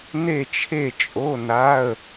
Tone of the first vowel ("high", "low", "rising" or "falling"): falling